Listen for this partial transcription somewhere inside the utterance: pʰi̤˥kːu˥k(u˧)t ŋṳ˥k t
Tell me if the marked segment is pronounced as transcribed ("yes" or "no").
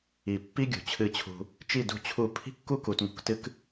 no